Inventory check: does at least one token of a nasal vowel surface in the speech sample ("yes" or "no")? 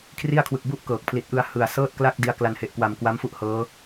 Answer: no